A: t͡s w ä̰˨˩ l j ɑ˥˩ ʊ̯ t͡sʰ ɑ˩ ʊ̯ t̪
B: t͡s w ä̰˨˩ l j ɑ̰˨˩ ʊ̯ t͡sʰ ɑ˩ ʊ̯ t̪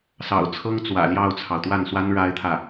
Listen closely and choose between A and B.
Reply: A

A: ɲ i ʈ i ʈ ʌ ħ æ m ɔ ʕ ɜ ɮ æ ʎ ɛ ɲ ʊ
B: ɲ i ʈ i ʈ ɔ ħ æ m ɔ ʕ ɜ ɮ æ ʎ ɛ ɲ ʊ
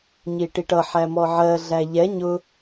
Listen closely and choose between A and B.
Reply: A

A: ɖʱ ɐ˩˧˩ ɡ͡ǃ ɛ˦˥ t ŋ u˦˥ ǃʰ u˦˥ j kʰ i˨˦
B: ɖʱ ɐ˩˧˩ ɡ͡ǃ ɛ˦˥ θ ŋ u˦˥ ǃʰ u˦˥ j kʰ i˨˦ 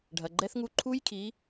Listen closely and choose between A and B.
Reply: B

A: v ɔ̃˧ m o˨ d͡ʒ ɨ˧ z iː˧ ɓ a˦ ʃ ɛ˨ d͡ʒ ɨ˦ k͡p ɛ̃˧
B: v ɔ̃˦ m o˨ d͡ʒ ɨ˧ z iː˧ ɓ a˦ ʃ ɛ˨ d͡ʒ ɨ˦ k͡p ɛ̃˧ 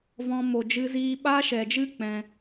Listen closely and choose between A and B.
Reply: A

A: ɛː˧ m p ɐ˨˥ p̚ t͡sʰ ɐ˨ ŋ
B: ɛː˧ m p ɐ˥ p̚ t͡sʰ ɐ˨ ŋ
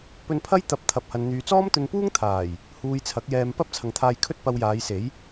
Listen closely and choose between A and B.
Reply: B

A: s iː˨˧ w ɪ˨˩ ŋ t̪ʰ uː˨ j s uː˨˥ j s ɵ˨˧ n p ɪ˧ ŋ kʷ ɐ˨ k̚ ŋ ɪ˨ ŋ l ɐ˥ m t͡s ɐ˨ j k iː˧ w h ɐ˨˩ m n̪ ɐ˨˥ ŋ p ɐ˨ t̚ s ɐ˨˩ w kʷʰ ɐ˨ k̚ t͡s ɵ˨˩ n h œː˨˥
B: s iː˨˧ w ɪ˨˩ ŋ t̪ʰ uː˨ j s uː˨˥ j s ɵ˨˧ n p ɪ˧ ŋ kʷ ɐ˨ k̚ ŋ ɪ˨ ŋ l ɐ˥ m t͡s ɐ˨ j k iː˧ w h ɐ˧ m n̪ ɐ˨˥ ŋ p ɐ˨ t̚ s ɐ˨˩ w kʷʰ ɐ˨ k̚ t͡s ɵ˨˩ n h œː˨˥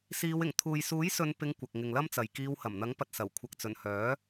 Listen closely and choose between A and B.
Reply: A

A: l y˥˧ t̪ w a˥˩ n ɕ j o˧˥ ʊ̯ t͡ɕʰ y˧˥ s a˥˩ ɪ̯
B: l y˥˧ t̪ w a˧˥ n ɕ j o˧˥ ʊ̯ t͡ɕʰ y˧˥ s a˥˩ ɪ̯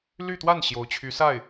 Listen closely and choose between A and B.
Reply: A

